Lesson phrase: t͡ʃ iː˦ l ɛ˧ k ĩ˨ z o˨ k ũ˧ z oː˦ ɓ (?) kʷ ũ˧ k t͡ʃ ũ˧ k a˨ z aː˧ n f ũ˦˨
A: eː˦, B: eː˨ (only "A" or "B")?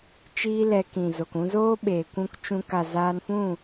B